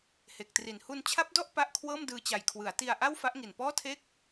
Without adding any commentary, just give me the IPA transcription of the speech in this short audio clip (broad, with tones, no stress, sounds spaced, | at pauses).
h e˨˩ k̚ t r i˨˩ n h u˧ n t͡ɕʰ a˦˥ p̚ d ɔ˥˩ ʔ p a˥˩ ʔ kʰ w ɤː˥˩ m d ɯː˧ t͡ɕ a˨˩ j kʰ w ɯ˩˦ a̯ t i˧ a̯ ʔ a˥˩ w f a˦˥ ʔ ŋ i˨˩ n p ɔː˥˩ tʰ eː˥˩ k̚